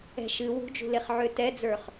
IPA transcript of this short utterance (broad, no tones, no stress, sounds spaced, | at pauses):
ɛ̤ ʃ ɨ w ṳ d͡ʒ ṳ l e χ ʕ ø t ɛ d͡z ə˞ χ